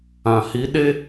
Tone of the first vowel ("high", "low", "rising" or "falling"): low